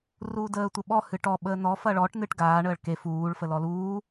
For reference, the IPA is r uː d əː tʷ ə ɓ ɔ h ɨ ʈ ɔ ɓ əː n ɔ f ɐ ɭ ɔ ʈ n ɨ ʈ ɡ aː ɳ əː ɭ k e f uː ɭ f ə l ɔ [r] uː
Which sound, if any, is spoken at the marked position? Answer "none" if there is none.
l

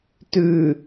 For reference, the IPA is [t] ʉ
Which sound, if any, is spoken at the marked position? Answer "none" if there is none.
t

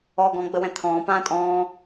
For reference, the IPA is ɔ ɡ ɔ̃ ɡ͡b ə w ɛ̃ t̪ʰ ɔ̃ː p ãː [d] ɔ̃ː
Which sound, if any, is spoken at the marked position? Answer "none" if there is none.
tʼ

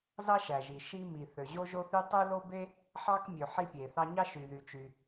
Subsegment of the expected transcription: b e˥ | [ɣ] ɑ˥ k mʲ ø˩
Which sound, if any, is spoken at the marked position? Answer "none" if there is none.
ħ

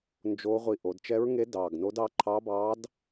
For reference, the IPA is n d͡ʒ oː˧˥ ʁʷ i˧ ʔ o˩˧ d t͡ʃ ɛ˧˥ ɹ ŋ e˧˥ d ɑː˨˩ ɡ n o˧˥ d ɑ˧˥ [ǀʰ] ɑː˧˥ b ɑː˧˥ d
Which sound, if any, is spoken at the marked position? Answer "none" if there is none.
ǃʰ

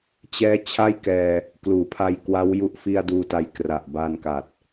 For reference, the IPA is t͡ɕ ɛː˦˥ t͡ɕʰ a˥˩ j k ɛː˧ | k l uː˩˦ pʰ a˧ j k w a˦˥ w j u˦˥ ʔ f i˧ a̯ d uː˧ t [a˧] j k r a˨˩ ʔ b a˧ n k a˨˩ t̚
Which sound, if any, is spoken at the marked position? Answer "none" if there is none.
a˧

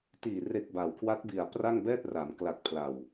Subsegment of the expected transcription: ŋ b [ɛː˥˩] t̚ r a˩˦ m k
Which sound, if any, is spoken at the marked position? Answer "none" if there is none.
ɛː˥˩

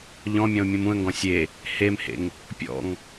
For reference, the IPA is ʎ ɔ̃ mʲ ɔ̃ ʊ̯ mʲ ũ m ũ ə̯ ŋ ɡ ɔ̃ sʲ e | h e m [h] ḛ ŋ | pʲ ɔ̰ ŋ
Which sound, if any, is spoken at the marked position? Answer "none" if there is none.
h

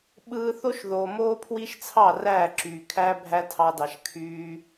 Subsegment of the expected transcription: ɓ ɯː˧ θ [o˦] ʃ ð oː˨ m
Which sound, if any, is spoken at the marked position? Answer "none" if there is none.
o˦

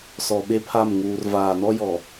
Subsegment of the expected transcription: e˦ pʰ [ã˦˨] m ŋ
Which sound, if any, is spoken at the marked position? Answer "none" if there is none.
a˦˨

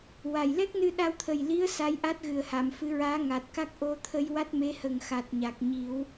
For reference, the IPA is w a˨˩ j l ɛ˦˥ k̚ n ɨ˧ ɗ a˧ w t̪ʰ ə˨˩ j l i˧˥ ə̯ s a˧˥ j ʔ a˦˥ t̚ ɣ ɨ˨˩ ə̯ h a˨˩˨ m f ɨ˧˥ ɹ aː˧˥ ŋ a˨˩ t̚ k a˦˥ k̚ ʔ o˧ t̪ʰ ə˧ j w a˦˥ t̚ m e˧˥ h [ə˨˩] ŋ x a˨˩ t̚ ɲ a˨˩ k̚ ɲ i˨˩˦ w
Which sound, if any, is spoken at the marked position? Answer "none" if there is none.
ə˨˩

